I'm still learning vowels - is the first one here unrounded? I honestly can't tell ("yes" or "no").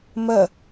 yes